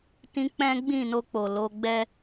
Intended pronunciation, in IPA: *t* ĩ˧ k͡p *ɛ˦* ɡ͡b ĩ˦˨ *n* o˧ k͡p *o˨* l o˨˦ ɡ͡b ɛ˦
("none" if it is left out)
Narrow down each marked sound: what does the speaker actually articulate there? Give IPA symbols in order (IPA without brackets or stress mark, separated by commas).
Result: t, ɛ̃˦, n, o˨